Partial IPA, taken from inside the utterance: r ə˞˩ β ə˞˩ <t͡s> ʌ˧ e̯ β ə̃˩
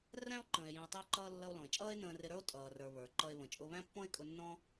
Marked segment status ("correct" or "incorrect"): incorrect